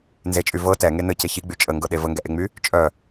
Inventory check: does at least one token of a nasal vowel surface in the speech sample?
no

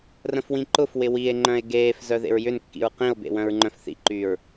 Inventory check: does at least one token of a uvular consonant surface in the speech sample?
yes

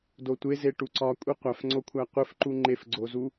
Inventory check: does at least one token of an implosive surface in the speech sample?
no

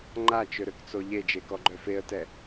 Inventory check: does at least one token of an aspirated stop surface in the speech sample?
no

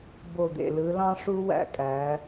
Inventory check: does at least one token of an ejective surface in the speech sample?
yes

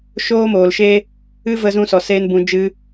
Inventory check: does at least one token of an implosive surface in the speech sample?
no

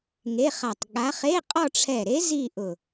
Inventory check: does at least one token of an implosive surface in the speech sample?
yes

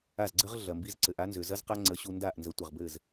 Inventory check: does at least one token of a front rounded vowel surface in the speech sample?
yes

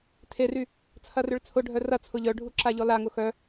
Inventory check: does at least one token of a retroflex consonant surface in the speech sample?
yes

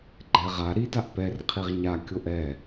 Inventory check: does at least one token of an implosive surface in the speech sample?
no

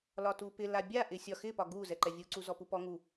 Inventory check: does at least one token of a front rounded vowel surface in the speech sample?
no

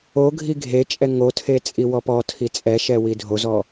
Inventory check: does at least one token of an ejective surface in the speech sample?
yes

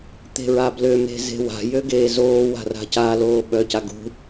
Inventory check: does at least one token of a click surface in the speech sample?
no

